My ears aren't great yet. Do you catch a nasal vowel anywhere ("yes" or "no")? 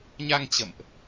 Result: no